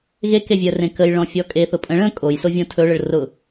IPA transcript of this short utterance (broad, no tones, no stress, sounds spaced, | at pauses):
ɣ e k e vʲ œ r ẽ k ə j ɭ ɔ̃ fʲ ɔ kʼ e θ ʊ pʼ ə̃ ɭ ə̃ kʼ o j s o vʲ õ tʰ ɵ ɭ ə ɭ r ʊ